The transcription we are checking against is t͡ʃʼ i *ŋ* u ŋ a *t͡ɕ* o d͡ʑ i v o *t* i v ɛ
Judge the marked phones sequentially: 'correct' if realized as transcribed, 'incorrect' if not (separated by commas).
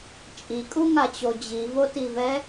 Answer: incorrect, correct, correct